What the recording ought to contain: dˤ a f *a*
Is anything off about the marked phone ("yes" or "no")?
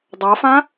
yes